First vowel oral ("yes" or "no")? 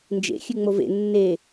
yes